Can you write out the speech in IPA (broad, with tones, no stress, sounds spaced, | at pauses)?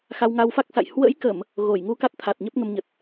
x a˧ w ŋ a˧ w f a˦˥ k̚ s a̰˧˨ j h w ə̰˧˥ j k ə˧˩˨ m | ɣ o˧˩ j ŋ u˧ k a˦˥ t̚ t̪ʰ a˨˩ t̚ ɲ ə˦˥ p̚ ŋ ə˧ m ɲ ə˨˩ t̚